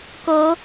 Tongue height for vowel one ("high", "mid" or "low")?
mid